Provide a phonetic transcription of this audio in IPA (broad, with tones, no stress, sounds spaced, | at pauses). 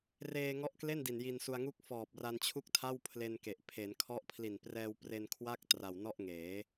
r eː˧ ŋ ɔ˦˥ ʔ k l e˥˩ n d i˨˩ n j i˧ n s u˧ a̯ ŋ u˥˩ k̚ f ɔː˨˩ p̚ r a˧ n t͡ɕʰ u˥˩ k̚ tʰ a˥˩ w pʰ l e˧ n k e˨˩ ʔ pʰ e˩˦ n kʰ ɔ˦˥ ʔ pʰ l i˨˩ n p r ɛː˧ w p r e˧ n kʰ w a˥˩ k̚ t r a˨˩ w n ɔ˥˩ ʔ ŋ eː˩˦